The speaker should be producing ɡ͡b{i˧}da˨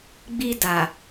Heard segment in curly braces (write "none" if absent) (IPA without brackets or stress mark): i˧